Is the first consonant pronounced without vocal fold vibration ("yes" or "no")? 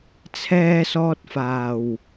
yes